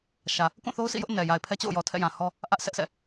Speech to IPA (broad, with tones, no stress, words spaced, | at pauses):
ʃä˨ | kũ˦˨θo˦ʊ̯sḭ˦˨jʊ˦ʔ nɛ˨ ja˨ɪ̯pʰɛ˦t͡ɕo̰˦˨ʊ̯jɔ˨ tʰɛ̰˦˨jã˨hɔ˦ | ʔä˦ʔsʰɛ˦ʔsɛ̰˦˨